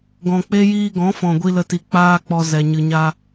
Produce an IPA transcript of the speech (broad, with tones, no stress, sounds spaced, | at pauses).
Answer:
ɡ ɔ̃˨ k͡p e˦ j iː˧ ɡ ɔ̃˨˦ f ɔ̃˨ ɡʷ i˧ l ə˧ t i˨ k͡p aː˦ k͡p ɔ˧ z ɛ˨ ɲ ɨ˨ ɲ a˧